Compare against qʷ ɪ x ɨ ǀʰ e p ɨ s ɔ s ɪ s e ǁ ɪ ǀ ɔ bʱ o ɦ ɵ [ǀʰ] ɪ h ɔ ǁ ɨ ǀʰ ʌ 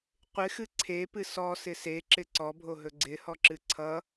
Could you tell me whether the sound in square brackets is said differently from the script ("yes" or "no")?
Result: yes